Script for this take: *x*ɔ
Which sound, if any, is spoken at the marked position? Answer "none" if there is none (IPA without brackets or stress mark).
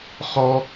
χ